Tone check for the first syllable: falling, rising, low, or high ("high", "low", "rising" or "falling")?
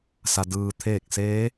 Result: low